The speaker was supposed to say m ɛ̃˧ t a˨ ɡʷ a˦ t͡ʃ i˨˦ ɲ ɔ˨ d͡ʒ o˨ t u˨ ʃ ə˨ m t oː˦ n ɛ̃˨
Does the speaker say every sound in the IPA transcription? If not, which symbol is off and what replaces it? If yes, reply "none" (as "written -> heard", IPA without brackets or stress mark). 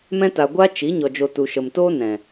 none